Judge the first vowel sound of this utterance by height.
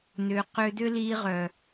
high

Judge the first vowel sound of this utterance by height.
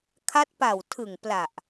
low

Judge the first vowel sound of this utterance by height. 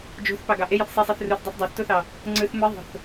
mid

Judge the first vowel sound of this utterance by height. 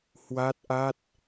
low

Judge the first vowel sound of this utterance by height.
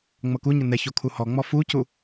mid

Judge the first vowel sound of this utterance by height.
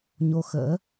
mid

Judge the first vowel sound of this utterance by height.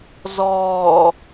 mid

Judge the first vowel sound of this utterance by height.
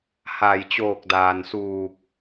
low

